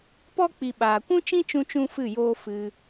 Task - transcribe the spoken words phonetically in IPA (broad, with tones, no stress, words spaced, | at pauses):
pɔ˦ k͡pi˧ ɓaː˨kʷũ˦t͡ʃĩ˦t͡ʃũ˧ t͡ʃũ˦fɨ˦˨joː˦ fɨ˧